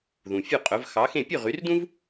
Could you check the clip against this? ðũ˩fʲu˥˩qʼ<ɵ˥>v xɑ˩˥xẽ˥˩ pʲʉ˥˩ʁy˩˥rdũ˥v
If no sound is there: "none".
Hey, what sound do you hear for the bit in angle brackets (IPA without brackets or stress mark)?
ɵ˩˥